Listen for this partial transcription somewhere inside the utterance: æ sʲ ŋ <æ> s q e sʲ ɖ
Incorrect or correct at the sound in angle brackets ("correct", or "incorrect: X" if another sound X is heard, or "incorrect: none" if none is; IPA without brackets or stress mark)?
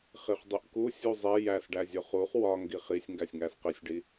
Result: correct